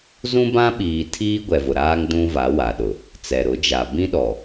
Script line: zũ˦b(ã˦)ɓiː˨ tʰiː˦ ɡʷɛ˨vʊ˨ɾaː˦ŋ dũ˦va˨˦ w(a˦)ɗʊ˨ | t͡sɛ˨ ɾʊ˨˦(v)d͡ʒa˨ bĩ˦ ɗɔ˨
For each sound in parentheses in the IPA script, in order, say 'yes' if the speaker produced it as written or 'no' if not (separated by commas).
yes, no, no